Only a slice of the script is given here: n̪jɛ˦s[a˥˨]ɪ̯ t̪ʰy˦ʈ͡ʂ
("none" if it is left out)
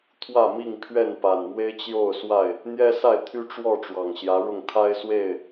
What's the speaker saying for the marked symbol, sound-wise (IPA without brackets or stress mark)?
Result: a˥˨